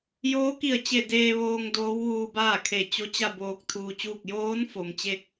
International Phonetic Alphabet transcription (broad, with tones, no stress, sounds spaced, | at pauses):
j oː˧˥ k i˧˩ ə̯ t͡ɕ e˧˩ d eː˧ ʋ oː˧ ŋ d oː˧˥ w ʋ uː˧ b aː˥˨ kʰ e˧˩ t͡ɕ o˧˥ t͡ɕ a˥˨ b oː˧ k̚ t̪ʰ uː˧ t͡ɕ uː˥˨ k̚ j oː˧˥ n f o˩ m t͡ɕ e˥˨ k̚